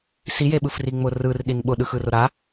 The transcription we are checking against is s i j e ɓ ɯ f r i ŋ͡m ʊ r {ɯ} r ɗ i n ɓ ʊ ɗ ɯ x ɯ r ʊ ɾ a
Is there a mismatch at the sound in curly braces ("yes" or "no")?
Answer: no